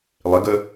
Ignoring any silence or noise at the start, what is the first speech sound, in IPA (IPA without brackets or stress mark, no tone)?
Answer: lˠ